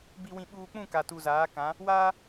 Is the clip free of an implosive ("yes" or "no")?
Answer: no